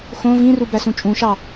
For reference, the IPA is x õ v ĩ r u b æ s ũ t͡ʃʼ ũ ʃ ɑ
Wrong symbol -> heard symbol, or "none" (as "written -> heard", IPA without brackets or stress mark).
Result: none